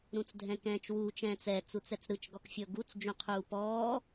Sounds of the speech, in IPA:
ɾ ũ t͡s dʱ ɛ̃ k ɛ̃ː t͡ʃ w uː t͡ʃ ɛ̃ː t͡s ɛ t͡s u t͡s ɛ t͡s ɾ ɯ t͡ʃ ɡ ɔ k fʲ ɤ ɡ u t͡s d͡ʒ ũ qʰ uː p ɔː

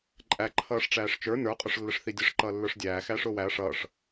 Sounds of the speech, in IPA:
ǃʼ æ ǃʰ ʌː ʂ ʈ͡ʂ æː ʂ t͡ʃ ə˞ n ə˞ qʼ ʊ ʂ lː ə ʂ θ i dʲ ə ʂ ǃ ʌː lː ə˞ ʂ dʲ æː x æː ʂ ʊː w æ ɐ̯ ʂ ʌː ʂ

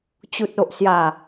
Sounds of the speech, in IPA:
t͡ɕ u˨ t̚ o˨ ʔ s j a˨˩

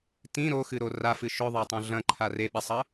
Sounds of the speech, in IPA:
t ĩ ɾ o x ɨ ɾ o r a f ɨ ʃ ɵ ðˤ a tˤ õ ɮ ɐ̃ ǃʰ a r e ɓ i sˤ ɐ

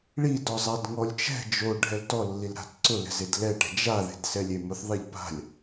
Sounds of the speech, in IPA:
ɭ i d ɔ zˤ a d ŋ ɔ lʲ t͡ʃ ɛ̤ d͡ʒ o ɖʱ ɛ l t ɔ lː i l ɾ a̤ t ǀ ʊ l ɛ̤ z e d l ɛ ʈ ɛ̤ d͡ʒ a ð e̤ d s ɛ lʲ e m ʊ θ ðˤ e ʎ p a̤ lʲ

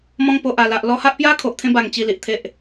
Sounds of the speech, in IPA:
m ɔ̃˧ ŋ p o˨ ʔ a˨˩ l a˨ ʔ l ɔ˧ h a˦ ʔ p j a˦ kʰ o˨ ʔ t̪ʰ ẽ˧ b a˨˩ ŋ t͡ɕ i˨˩ l i˨ ʔ t̪ʰ e˨ ʔ

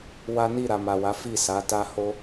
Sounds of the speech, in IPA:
w a˦ n i˦˨ ɾ a˨ m a˨ w a˨˦ f i˦˨ s a˨˦ t a˦ h o˦

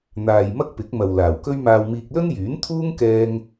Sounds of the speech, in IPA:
n̪ aː˨ j m ɐ˥ k̚ p ɪ˨˥ k̚ m ɐ˨ w l aː˨˩ w k ɵ˥ ɥ m aː˧ w m iː˧ k̚ l ɵ˥ n j yː˨˥ n t̪ʰ uː˥ ŋ k ɛː˧ ŋ

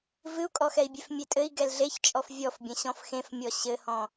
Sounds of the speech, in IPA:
v ɨ u̯ kʼ ɔ x ɛ i̯ bʲ e f mʲ e tʼ ɘ i̯ ɡ ɛ l ɮ e ç t͡ʃʼ ɔ f vʲ ɔ f bʲ ɐ̃ ɕ ɔ̃ f x ẽ f mʲ ɔ ɕ ɘ h ɔ̃

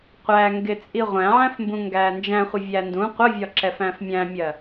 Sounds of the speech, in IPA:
qʷ æ ŋ ɡ ɪ t͡sʼ i ʁʷ æ̃ ʕ æ̃ f m b ũ ŋ ɡ æː n d͡ʒ æ̃ χʷ ɪ vʲ æ n d ũ qʷ ə vʲ ɒ ǁ ɛ f æ̃ f mʲ æ̃ mʲ ɜ

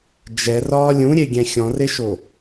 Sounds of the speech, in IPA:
d͡ʒ ɛ r ɒː lʲ ũ ɾʲ e ɡʲ ɛ̃ xʲ ɔ̃ r e ʃ o

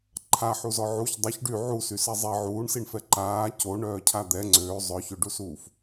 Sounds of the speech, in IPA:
ǃʰ a ħ u z ɔ ʕ u ç dˤ œ ç ɖ y ʕ u s y s ɛ zˤ e ʕ uː ɳ s i ɳ f ɛ ǃ aː c o ɳ œː cʰ a d̪ ɛ ŋ͡ǀ øː zˤ œ ç ø ɖ u s uː f

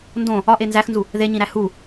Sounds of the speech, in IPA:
n d õ | ɒ ʔ e n z æ x n z u | ð e ɲ ĩ ɾ æ h u

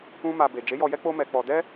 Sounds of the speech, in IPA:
ũ˦ m a˧ b e˨ d͡ʒ e˨˦ j ɔ˧ j ɛ˦ k͡p o˦ m ɛ˧ k͡p ɔ˧ d ɛ˦

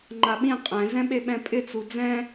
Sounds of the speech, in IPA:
ŋ͡ǃ a ɓ ĩ qʼ ɛ̃ z ɛ̃ ɓ e ɓ ɛ̃ pʼ ɪ t͡s u d͡z ɛ̃

